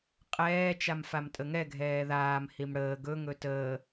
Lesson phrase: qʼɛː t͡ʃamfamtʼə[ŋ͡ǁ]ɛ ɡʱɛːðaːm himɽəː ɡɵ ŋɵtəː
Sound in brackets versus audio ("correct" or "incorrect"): incorrect